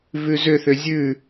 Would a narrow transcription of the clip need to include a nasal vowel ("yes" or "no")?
no